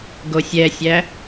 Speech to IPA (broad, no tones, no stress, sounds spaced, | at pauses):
ɡ o sʲ ɛ sʲ æ